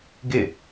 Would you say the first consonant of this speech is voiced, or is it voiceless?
voiced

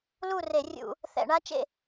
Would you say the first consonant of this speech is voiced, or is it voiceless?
voiced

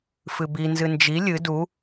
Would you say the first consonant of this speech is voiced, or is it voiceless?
voiceless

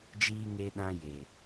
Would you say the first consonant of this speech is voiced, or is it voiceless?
voiced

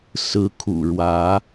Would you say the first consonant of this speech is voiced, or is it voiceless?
voiceless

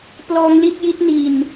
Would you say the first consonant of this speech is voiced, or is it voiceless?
voiceless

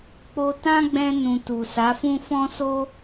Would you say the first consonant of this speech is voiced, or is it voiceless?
voiceless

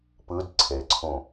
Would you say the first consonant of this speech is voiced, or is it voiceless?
voiceless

